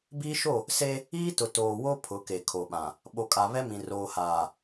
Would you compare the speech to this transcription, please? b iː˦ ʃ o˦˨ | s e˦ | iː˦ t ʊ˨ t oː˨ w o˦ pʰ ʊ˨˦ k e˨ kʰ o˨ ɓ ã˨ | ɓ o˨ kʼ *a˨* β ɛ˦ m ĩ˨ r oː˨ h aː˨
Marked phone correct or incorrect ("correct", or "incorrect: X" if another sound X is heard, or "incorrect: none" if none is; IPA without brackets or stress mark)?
correct